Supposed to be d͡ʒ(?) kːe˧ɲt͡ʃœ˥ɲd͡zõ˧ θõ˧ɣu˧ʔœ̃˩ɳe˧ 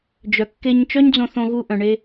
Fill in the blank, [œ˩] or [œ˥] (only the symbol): œ˩